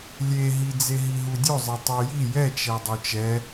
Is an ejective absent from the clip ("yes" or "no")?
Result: yes